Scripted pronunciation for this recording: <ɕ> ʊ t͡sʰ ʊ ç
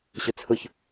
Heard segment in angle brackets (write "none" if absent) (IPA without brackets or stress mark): ɕ